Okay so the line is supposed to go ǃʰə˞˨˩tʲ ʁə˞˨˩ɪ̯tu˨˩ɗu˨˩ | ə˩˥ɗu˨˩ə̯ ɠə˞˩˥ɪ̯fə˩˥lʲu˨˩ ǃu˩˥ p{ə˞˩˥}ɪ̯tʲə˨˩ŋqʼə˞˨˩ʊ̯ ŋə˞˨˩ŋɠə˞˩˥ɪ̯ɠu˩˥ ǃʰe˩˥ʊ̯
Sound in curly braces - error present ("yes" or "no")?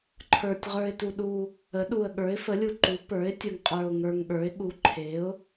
no